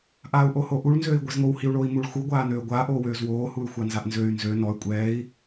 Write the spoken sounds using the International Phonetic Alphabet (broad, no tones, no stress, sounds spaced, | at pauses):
ʔ aː u̯ ʔ o h o ʔ u ɭ n z øː i̯ ɡʷ ɛ z ŋ o w h i u̯ ɭ oː i̯ m u ɭ x u ɡʷ aː n øː ɡʷ aː ʔ oː w øː z w oː h u y̯ xʷ a n z a ʔ n z ø y̯ n z ø n ɔ y̯ kʷʼ ɛː i̯